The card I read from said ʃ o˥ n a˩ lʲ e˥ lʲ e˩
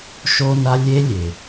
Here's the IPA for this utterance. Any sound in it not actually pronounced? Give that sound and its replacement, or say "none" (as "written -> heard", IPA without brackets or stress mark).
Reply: a˩ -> a˥